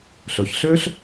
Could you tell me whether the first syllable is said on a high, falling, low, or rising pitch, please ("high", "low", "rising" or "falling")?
low